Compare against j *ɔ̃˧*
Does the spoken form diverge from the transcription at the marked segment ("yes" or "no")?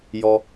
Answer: yes